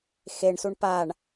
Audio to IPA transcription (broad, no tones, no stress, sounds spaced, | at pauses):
x e ɳ s u ɳ p a ɳ